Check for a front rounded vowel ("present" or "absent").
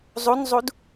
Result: absent